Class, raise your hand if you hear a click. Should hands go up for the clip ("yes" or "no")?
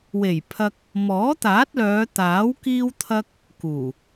no